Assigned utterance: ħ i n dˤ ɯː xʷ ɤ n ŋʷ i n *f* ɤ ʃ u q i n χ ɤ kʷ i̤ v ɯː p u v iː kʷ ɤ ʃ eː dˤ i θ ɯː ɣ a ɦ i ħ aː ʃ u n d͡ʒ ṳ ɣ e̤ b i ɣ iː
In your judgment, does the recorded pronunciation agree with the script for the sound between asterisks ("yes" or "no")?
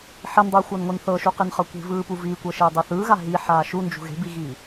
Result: no